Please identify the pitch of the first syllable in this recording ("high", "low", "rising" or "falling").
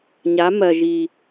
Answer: rising